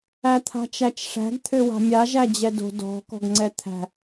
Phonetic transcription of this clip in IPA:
æ t̪ʰ a̤ t͡ʃ æ t͡ʃ ʂ æ̤ ɡ t̪ʰ ø w a̤ mʲ a ʒ æ d͡ʑ ɛ d o̤ d ɔ̤ k ɔ̤ ɡ ŋ͡ǀ ɛ t̪ʰ æ̤

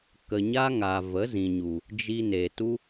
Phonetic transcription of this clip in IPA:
k ə˧ ɲ a˦ ŋ a˨ v ə˨˦ z ĩ˨ ɲ u˨ | d͡ʒ i˧ n e˨ t u˦

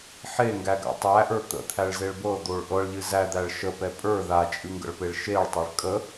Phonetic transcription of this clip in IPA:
ħ e ŋ ɡ æ ɡ a̰ tˤ æ ʔ ə˞ t̪ ə̰ t̪ʰ æ ɭ z e ɭ b ɤ d̪ o ɭ ʔ ɤ ɭ ʎ ɨ z æ d̪ æ ɭ ʃ ə p ɛ pʼ ə˞ ð a t͡ʃʼ ɨ ŋ ɡ ə̰ ɭ p e ɭ ʃ e ɭ tˤ ɛ ɭ kʼ ə

